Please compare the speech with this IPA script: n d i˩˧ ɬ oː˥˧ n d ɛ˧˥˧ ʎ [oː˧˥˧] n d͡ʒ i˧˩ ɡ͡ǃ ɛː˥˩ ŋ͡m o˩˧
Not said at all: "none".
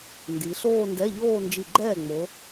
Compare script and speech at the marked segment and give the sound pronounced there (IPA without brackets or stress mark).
oː˥˧